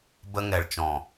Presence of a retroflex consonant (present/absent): present